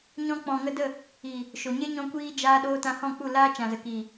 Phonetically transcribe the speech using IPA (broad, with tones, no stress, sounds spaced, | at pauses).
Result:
ɲ ɔ̃˧ k͡p ɔ̃˨ ŋ ə˧ d ə˦˨ | iː˨ | ʃ o˨ ɲ e˦ ɲ ɔ̃˧ kʷ iː˧ d͡ʒ aː˧ ɗ oː˧ t ã˧ h ɔ̃˦˨ k͡p u˦˨ l aː˦ t͡ʃ ã˨ z ə˨ k iː˨